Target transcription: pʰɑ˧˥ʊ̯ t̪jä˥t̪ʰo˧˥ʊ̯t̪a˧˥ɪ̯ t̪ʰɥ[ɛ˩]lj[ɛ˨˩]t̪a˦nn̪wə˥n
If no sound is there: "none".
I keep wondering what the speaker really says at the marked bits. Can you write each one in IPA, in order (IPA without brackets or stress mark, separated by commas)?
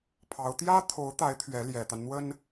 ɛ˧˥, ɛ˨˩